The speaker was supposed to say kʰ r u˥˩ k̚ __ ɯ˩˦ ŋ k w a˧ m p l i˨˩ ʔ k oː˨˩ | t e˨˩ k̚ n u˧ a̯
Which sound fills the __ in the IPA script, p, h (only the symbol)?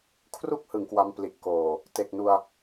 h